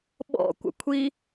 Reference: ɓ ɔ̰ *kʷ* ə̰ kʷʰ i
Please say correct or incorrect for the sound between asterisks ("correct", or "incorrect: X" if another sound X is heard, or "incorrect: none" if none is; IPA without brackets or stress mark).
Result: correct